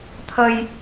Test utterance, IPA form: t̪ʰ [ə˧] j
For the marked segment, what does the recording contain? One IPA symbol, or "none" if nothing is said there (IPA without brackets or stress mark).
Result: ə˧